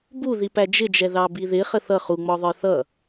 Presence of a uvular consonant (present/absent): present